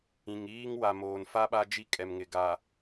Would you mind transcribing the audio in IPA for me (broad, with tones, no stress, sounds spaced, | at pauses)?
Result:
ĩ˨ ŋ iː˦ ŋ w a˨ m oː˨ n f a˦ ɓ a˦ d͡ʒ i˦ kʼ ɛ˨ m ŋ ɪ˨ ɡ a˨